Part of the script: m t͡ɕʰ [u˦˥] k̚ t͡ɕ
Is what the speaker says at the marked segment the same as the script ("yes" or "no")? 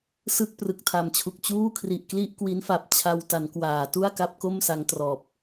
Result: no